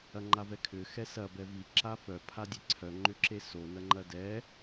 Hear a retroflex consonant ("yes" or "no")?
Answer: no